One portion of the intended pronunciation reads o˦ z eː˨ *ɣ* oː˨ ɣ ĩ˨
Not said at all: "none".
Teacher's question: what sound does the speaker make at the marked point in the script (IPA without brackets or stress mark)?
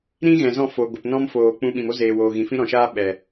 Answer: w